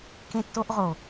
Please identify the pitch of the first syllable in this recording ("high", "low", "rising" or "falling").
high